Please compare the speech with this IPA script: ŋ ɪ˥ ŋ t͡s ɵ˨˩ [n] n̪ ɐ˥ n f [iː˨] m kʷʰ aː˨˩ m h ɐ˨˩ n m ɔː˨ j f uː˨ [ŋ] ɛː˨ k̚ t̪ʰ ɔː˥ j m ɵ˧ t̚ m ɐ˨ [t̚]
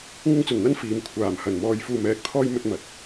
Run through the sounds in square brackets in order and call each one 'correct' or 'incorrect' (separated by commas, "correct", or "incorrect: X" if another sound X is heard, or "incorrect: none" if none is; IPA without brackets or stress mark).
correct, correct, incorrect: m, correct